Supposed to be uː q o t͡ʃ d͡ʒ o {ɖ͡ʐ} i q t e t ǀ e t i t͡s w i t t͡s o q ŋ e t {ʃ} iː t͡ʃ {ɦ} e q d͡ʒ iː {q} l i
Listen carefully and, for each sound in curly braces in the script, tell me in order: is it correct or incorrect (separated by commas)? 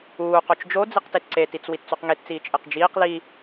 incorrect, incorrect, incorrect, correct